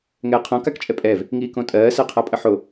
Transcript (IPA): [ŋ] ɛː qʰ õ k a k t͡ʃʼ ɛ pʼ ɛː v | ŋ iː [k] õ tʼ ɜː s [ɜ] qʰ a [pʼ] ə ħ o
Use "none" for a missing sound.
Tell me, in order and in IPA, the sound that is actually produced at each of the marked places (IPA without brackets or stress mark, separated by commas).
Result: ŋ, k, ɜ, pʼ